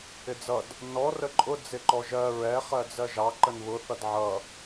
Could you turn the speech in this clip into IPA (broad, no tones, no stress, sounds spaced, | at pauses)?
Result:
ɪ d͡z ʌ d | n ɔ r ə ǃʼ ʊ d͡z ɪ ǃ ɔ ʒ ɜ ɹ ɛ χ ɜ d͡z ɜ ʒ ɑ ǃ ə n β ʊ θ ʌ d ʕ ʌ